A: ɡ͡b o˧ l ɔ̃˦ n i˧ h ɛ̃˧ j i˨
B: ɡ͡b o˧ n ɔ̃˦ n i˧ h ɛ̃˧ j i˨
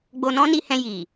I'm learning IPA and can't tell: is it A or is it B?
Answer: B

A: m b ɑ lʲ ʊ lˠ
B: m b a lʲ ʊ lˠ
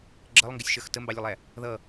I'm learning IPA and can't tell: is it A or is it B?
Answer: A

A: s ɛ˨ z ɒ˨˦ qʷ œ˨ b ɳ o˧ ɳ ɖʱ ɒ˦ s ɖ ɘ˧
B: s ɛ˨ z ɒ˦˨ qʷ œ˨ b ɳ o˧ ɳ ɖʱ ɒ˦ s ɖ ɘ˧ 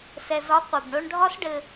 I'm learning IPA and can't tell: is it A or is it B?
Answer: A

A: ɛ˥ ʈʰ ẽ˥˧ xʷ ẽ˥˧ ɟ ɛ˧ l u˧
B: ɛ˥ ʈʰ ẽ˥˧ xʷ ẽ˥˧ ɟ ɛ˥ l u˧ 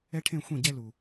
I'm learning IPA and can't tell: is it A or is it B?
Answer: B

